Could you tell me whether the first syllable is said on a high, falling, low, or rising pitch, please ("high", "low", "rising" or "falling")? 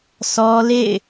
high